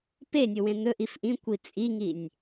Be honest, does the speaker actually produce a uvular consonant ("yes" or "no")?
no